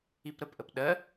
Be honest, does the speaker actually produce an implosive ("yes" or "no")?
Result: yes